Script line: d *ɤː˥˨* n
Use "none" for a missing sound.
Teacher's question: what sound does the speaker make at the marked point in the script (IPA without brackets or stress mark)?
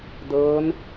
ɤː˧˥